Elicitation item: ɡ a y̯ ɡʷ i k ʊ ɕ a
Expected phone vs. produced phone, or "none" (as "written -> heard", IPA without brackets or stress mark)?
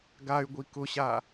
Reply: none